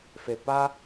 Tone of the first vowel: low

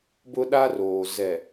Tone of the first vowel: high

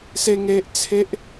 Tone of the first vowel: high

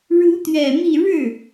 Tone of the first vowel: rising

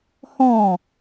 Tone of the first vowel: falling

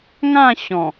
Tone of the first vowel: falling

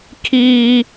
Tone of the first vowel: high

